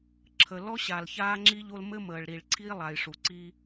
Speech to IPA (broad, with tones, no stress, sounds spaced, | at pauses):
ǁʰ ə˨ l ɔ˦ ɕ a˨ l ç aː˦ ŋ͡ǁ i˦ ʎ o˦ l m ɘ˦ m əː˨ ɭ ɾ i˨ ɭ ǀʰ iː˦ lˠ a˨ j ʂ u˨ ǀ i˦